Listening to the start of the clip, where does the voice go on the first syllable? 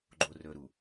low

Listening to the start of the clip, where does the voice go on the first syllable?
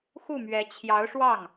falling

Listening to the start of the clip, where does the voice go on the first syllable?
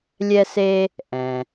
high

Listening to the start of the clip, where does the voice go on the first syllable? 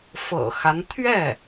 low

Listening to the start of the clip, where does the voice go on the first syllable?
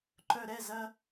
low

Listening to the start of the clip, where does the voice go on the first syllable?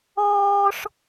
high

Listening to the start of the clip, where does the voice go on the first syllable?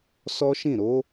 high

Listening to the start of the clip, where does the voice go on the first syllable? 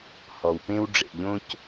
low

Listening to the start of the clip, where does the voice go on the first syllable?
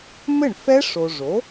falling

